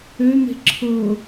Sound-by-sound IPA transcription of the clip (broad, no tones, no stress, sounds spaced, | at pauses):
ø n̪ e̤ ǁʰ ɤ